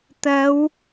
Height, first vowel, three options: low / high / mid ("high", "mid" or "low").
low